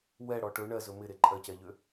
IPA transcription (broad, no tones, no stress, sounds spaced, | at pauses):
w ɛ ɽ ɔ ʈ ɵ ɳ ɜ z ɵ m ɪ ɾ e ǃʼ ɜ c ɛ ʎ ø